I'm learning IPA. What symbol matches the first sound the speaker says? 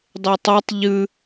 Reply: dˤ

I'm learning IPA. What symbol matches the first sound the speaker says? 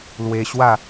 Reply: l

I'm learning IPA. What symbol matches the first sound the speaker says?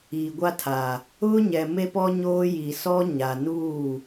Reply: i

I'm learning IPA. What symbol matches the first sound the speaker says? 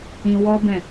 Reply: ĩ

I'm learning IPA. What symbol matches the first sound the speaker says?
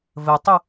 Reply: v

